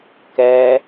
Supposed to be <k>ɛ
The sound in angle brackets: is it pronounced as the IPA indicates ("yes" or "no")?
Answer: yes